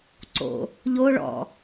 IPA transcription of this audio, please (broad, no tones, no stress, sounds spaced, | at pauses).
ǀ o̰ | ʎ o ɭ ɔ̰